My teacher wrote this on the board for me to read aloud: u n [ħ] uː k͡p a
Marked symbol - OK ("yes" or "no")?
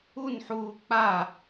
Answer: yes